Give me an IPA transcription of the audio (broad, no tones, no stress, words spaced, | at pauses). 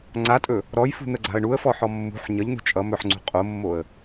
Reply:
ŋ͡ǀatʼɵ | ɾɔjfṳn̪əɡ͡ǀa̤ə̯ ɳuə̯fɔħɔ mːṳħ ɲʌʎn̪ṳ t͡ʃʼʌ mɵħŋ͡ǀṳ qʼomːoə̯